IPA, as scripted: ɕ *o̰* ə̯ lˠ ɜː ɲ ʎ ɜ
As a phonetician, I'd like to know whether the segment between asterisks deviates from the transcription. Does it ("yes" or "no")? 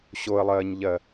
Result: yes